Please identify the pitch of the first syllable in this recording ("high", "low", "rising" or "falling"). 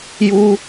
low